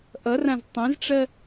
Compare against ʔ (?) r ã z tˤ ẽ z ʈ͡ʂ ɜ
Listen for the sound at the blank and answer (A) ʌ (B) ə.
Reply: A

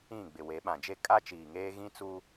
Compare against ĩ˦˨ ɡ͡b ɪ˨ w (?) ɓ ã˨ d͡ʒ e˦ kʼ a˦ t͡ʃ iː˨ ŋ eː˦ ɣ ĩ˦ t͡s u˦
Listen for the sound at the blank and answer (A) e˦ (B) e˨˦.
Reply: B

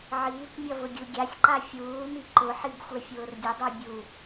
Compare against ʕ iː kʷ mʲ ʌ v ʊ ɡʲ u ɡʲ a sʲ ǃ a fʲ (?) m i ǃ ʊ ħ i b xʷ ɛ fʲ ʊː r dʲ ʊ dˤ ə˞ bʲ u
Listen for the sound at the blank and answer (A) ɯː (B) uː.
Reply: B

